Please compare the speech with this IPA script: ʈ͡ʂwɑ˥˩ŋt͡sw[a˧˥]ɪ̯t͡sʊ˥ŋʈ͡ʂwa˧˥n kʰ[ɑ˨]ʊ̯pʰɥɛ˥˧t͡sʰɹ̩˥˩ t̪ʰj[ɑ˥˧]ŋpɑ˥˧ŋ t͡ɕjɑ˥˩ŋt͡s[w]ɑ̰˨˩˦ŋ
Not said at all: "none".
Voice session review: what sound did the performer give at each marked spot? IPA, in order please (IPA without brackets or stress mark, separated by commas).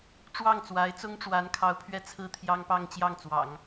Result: a˧˥, ɑ˧˥, ɑ˥, w